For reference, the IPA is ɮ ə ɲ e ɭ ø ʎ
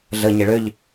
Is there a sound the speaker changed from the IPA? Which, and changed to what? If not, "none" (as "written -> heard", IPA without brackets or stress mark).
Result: none